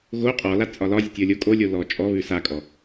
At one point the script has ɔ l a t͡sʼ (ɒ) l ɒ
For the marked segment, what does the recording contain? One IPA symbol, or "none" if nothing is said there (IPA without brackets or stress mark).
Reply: ɒ